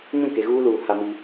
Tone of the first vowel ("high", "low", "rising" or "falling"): falling